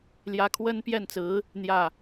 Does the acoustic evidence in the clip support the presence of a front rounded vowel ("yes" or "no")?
no